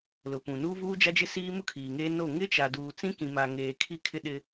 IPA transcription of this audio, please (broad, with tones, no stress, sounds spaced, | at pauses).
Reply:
l ʊ˨ p ũ˨ n uː˦ v uː˦ d͡ʒ a˦ d͡ʒ ɪ˦ s iː˦ m ʊ˦ kʰ iː˨ ŋ eː˦ n o˦˨ ŋ ɪ˦ t͡ʃ a˨ d uː˨ t͡s ĩ˦ k ĩ˨ m a˨ ŋ eː˨ kʰ i˦ kʰ ɪ˦ ɗ ɪ˦